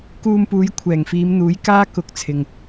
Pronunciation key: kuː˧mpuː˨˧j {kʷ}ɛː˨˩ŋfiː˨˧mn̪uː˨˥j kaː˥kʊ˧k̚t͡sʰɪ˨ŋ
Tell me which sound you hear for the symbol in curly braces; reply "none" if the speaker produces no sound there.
kʷʰ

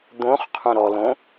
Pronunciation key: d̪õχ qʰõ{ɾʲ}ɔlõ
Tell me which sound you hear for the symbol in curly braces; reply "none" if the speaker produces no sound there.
ɾ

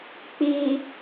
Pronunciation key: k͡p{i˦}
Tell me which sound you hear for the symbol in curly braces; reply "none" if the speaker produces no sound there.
i˨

